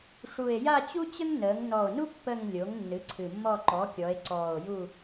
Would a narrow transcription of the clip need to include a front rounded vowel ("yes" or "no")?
no